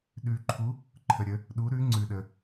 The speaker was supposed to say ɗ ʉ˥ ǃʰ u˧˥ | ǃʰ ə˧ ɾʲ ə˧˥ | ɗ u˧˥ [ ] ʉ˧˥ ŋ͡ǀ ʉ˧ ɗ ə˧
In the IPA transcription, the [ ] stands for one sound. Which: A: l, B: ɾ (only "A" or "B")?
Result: B